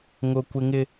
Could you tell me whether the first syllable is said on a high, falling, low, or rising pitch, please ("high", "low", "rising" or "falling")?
high